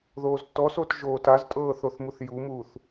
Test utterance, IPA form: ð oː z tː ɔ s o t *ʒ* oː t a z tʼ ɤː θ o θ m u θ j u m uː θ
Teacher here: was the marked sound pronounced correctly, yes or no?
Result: yes